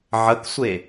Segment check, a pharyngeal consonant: present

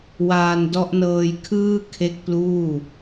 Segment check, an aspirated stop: present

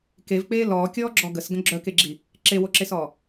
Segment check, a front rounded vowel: present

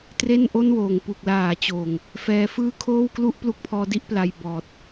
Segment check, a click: absent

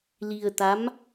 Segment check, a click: absent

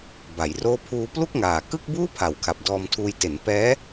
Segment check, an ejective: absent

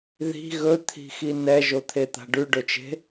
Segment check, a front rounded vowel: absent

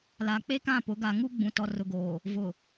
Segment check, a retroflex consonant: absent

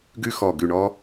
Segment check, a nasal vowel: absent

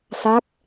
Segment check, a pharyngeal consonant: absent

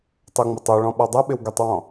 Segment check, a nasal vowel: present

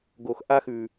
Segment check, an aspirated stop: absent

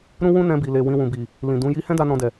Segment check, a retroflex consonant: absent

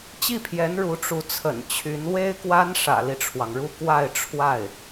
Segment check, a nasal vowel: absent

